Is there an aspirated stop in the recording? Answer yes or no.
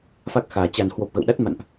no